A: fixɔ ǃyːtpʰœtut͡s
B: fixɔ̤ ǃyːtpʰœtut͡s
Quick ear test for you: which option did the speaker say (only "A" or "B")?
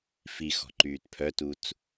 B